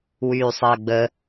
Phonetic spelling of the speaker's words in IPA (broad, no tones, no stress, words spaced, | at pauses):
wyːsˤəːɡ͡bə